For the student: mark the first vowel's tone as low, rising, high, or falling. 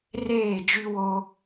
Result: falling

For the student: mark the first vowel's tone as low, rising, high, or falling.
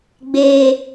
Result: high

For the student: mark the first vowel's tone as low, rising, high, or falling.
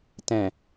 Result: low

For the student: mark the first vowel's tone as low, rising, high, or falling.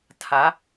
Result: rising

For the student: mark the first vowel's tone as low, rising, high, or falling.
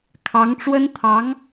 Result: rising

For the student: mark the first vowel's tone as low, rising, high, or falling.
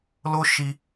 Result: high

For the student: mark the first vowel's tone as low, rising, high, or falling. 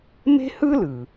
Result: high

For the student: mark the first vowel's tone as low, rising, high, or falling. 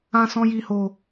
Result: high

